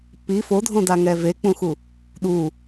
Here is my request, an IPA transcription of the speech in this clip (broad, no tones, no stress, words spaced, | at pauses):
pi fodʱõdaŋɛ vek͡pũxu | ɗu